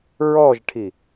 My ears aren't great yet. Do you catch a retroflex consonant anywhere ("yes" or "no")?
yes